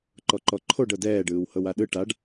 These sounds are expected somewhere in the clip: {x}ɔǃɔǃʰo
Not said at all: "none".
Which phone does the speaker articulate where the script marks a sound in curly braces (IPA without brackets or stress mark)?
ǃ